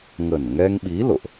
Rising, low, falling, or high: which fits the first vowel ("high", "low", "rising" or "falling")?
low